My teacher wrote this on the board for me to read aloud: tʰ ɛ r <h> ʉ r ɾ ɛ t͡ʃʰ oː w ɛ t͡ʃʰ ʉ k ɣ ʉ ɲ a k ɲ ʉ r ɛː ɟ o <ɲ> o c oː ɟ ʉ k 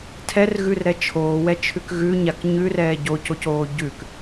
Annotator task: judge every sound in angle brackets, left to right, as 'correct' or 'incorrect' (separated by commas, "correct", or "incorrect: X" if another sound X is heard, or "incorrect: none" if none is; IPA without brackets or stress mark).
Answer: incorrect: ɣ, incorrect: c